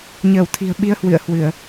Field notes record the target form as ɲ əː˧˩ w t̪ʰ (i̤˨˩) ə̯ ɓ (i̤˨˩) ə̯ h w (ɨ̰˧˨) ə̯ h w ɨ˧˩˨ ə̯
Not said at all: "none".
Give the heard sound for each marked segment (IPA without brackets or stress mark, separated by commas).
i̤˨˩, i˧, ɨ̰˧˨